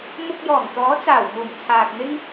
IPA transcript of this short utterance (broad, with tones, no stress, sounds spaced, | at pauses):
m ʊ˧ k̚ j ɔː˨˩ ŋ t̪ ɔː˨˥ t͡s aː˨˩ w ŋ uː˨˩ m t͡sʰ aː˨ k̚ n̪ ɪ˥ ŋ